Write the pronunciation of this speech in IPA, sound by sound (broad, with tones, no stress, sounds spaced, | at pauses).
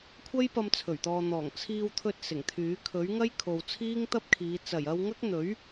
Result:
kʷʰ ɐ˥ j p ɐ˧ m t͡sʰ ɵ˨˩ ɥ t̪ ɔː˨ n̪ ɔː˨˩ ŋ t͡sʰ iː˧ w t̪ʰ ɵ˧ t̚ s ɪ˨˩ ŋ t̪ʰ yː˨˥ kʰ ɵ˨˥ ɥ ŋ ɐ˥ j kʰ o˨ w t͡sʰ iː˥ ŋ t̪ ɐ˥ p̚ kʰ iː˨˧ t͡s ɐ˨˩ j ɐ˧ w ŋ ɐ˥ k̚ n̪ ɵ˨˥ ɥ